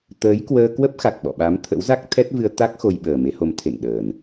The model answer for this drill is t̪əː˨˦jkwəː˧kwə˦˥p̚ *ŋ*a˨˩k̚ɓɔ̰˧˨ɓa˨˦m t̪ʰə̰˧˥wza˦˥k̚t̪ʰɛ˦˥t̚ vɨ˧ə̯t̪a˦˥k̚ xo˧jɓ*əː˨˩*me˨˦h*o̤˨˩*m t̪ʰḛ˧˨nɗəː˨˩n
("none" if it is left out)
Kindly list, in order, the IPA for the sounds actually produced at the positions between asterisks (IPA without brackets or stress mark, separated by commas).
x, əː˨˩, o˨˦